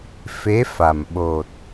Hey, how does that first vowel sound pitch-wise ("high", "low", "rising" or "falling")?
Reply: rising